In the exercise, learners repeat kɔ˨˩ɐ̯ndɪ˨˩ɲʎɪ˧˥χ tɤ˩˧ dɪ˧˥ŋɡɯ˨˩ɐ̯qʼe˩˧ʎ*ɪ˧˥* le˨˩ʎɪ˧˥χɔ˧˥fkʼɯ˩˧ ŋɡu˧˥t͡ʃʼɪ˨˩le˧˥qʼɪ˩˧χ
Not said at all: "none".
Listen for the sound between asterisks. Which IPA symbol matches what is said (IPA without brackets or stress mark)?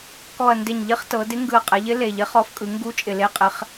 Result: ɪ˧˥